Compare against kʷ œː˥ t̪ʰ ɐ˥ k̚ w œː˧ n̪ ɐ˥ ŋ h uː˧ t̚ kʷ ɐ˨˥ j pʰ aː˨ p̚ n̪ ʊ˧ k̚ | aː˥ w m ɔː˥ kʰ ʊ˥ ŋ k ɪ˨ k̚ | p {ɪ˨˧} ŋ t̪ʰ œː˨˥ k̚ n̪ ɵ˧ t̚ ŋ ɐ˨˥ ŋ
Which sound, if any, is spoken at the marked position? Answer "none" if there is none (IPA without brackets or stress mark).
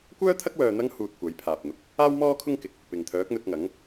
ɪ˨